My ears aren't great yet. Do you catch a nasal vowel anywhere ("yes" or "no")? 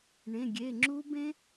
yes